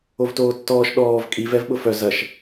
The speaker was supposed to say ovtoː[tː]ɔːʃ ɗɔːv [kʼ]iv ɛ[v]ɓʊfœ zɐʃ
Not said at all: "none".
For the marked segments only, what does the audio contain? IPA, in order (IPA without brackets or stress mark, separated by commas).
tː, kʼ, v